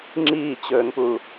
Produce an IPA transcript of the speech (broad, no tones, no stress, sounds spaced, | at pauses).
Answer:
ŋ͡ǁ iː t͡ɕ ɵː n p u